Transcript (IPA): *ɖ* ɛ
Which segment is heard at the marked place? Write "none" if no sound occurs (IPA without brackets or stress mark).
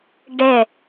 ɖ